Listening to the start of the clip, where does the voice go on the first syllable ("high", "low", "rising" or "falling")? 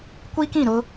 high